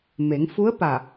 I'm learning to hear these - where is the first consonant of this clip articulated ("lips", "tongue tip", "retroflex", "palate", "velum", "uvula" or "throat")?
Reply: lips